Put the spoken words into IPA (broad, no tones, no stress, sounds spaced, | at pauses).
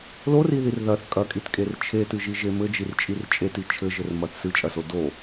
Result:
l o r i ð i r ð ɐ θ kʼ ɐ kʼ i t kʼ e r t͡ʃʰ e t ɨ ʒ i ʒ e m ɘ d͡ʒ i r t͡ʃʼ i r t͡ʃʼ e t i t͡ʃʰ ɘ ʒ ɘ r m ɐ θ s ɨ t͡ʃʼ ɐ s o d o